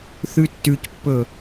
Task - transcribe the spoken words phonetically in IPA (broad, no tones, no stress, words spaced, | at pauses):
θʉtːʉcpːɵ